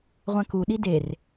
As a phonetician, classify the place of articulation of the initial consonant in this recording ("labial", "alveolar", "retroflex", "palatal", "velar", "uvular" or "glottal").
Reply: uvular